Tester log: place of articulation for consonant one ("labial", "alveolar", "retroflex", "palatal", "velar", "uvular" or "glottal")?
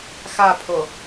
velar